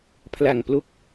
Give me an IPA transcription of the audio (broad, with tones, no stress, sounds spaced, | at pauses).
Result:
pʰ l a˨˩ ŋ p l o˦˥ k̚